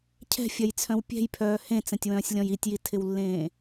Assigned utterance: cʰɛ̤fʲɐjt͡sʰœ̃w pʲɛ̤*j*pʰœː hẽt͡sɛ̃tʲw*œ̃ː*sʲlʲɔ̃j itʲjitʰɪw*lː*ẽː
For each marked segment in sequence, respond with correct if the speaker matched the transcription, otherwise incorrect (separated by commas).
correct, correct, correct